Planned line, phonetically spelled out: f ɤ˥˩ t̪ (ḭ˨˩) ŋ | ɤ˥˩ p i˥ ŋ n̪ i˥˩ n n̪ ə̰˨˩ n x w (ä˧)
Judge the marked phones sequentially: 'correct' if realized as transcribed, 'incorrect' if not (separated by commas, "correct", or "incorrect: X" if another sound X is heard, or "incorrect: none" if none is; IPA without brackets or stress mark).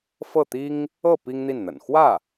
incorrect: i˥, incorrect: ä˥˩